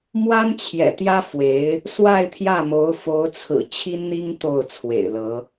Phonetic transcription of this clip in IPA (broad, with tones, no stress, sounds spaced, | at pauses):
m w a˥ n t͡ɕʰ j ɛ̰˨˩ t̪ j ä˥ f w e˧˥ ɪ̯ | s w a˥˧ ɪ̯ t̪ʰ j ä˥˩ m o˧˥ ʊ̯ f o˧˥ ʊ̯ t͡sʰ ɹ̩˨˩ t͡ɕʰ i˥ n n̪ i˥ ŋ t̪ o˥˩ ʊ̯ t͡sʰ w ḛ˨˩ ɪ̯ l ɤ˧˥